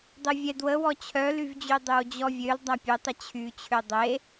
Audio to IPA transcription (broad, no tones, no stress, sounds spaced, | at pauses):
dˤ e vʲ ɛ d w ə w ɔ t͡ɕʰ œ l y v d͡ʑ y dˤ ø w d͡ʑ ɔ vʲ ø l dˤ a pʲ ø tˤ ə t͡ɕʰ y t͡ɕʰ ø dˤ e